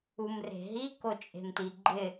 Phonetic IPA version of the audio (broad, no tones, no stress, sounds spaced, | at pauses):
u m r e̤ ɦ i k o t͡ʃʼ e̤ m t i ɡ͡ǃ ɪ